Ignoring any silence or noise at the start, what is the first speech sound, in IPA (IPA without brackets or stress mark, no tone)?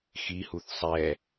x